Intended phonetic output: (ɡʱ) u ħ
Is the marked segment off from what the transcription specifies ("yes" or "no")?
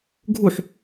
no